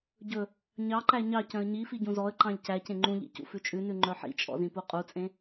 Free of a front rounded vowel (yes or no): no